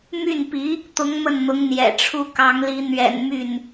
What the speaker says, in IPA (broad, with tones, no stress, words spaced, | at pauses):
my˥˩npi˧˥ | t̪ʊ˧˥ŋ mə˥˩nn̪ʊ˧˥ŋ n̪jɛ̰˨˩ʈ͡ʂʰu˥˩ kɑ˧˥ŋli˧˥ n̪ɥɛ̰˨˩n my˥˩n